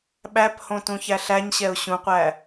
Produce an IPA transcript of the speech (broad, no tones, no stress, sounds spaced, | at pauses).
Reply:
ɓ æ p h õ t ũ ç æ ɬ æ ɲ ɕ ɛ ʊ̯ ɕ ũ qʷ æ